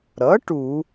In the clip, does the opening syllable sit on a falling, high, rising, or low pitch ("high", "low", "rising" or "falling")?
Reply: rising